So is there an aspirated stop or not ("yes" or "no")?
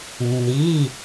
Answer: no